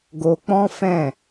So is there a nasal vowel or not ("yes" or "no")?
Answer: yes